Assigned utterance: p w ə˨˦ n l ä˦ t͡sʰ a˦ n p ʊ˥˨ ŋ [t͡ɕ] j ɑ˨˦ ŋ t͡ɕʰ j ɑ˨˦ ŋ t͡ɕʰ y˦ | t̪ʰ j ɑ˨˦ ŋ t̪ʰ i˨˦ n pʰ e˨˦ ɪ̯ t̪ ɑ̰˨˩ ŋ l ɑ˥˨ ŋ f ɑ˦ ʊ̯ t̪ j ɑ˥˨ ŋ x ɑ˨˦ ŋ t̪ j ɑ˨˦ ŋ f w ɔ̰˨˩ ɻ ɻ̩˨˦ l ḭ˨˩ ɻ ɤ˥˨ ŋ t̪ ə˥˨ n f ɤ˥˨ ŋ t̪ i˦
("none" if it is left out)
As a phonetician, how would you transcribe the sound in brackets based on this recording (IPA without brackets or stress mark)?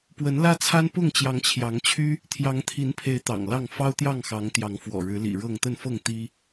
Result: t͡ɕ